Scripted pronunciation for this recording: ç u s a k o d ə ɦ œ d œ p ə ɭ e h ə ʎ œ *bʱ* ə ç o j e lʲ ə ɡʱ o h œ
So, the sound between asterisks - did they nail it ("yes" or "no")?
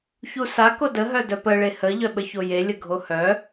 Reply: no